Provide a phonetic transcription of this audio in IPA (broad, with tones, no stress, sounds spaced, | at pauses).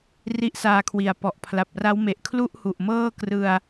r i˦˥ ʔ s aː˧ kʰ w i˨˩ a̯ p ɔ˨˩ ʔ pʰ l a˨˩ p̚ r a˦˥ w m e˨˩ ʔ kʰ l u˥˩ ʔ h u˨˩ ʔ m ɤː˥˩ k r ɯ˧ a̯